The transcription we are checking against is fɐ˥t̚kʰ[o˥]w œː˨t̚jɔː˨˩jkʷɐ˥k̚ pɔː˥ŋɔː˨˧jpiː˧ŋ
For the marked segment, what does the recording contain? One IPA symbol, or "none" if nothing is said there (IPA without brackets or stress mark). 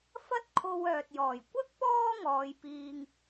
o˧